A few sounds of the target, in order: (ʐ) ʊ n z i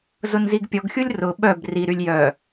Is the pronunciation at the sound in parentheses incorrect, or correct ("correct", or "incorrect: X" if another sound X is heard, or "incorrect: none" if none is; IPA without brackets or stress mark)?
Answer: incorrect: z